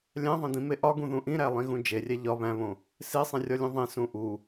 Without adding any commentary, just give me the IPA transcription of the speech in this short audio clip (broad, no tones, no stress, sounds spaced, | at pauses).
lʲ æ̃ ðˤ ẽ d̪ ĩ m e ʔ ɒ ɡ ũ ð ũ ʔ ĩ ɾ æ lˠ ĩ ɣ ũ d͡ʒ e rʲ æ ʎ ɒ β æ̃ β õ | s e sˤ ẽ rʲ ɒ lʲ ũ ðˤ ẽ s ũ ʔ u